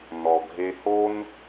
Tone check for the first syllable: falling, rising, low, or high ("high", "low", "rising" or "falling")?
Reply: low